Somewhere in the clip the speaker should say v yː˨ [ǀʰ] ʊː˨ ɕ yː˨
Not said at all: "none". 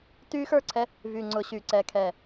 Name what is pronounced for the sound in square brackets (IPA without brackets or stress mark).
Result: ŋ͡ǀ